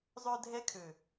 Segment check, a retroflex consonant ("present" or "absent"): absent